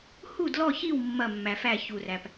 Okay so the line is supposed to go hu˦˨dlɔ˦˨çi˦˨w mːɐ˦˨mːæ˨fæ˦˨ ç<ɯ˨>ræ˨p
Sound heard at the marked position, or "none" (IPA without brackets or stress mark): u˨